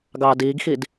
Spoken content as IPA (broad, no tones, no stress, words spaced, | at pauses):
ɡɑːdiːɡxid